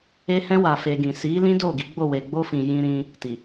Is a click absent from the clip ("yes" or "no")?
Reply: yes